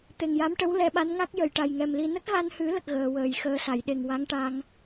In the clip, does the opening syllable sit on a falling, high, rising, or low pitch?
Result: low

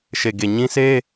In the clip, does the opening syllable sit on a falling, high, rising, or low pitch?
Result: low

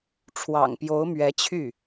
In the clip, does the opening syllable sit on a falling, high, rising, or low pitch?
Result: low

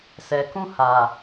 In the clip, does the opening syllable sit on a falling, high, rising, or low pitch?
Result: low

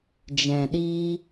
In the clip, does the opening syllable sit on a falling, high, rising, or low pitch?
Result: low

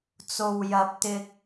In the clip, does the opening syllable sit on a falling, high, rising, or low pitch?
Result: low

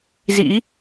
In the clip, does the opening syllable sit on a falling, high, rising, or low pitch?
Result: rising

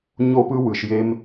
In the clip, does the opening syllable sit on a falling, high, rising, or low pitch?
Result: high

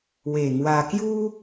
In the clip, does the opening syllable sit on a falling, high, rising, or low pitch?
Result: low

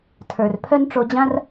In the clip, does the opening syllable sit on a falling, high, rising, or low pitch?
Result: low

